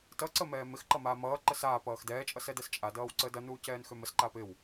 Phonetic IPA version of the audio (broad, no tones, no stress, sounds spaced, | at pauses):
t ʌ ǀ ə m ɛː m ɪ x ǃ ʌ m aː m ʌː ǃ ə s aː p ʌː x d ɛː t͡ʃʼ ʌ s ɛ d ɛ s t͡ʃʼ a d ʌː w ǀ əː d ʌ n uː c ɛː n x ø m ə s ǃ aː p ɪ w